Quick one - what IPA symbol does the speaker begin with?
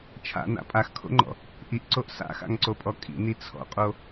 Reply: t͡ʃʰ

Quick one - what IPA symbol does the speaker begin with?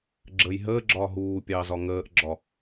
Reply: ɡ͡ǁ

